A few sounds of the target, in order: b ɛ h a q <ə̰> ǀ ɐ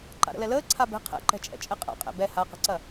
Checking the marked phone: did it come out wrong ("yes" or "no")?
yes